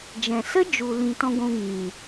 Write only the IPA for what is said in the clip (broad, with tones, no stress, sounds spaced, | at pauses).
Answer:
d͡ʒ ɛ̃˨ s ə˦ d͡ʒ u˨ l ĩ˧ t ɔ̃˦ ɡʷ ũ˧ ŋ ĩ˨